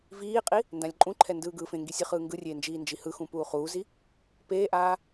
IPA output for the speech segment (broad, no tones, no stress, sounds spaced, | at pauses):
v iː qʼ i | n d ã lʲ ǃʼ ũ ǃʰ ɛ n d ɯː ɡ ɯː f ẽ ŋ ɡ i sʲ ɯ χ ɯː ŋ ɡ ɯ rʲ eː n d͡ʒ iː n d͡ʒ i h ɯ x ũ p uː χ uː z i | p eː ʔ aː